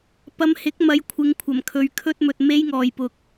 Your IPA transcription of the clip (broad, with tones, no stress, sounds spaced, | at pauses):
p ɐ˧ m h ɪ˨˥ k̚ m ɐ˨˧ j kʷʰ ɪ˨˧ ŋ kʷʰ ɐ˨˩ m kʰ ɵ˨˧ ɥ kʰ ɵ˥ t̚ m ɵ˧ t̚ m e˥ j ŋ ɔː˨ j p ʊ˨ k̚